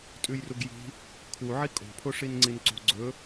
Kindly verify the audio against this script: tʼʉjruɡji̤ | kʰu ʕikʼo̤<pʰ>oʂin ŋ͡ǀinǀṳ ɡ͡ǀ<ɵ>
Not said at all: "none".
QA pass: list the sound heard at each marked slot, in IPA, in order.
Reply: pʰ, ɵ

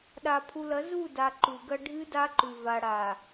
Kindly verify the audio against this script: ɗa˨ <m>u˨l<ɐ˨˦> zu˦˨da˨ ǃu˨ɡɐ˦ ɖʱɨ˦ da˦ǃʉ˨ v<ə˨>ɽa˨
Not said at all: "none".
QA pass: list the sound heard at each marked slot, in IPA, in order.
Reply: pʰ, ɐ˨˦, a˨

